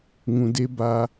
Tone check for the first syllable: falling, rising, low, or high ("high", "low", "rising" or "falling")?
low